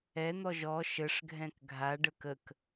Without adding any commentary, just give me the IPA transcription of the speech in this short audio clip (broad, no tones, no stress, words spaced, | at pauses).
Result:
ɛn̪ɔ ʒɔ ʃəʂɡʱɛ̃k ɡʱaɖək ək